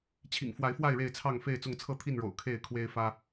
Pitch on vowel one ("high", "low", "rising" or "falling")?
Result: low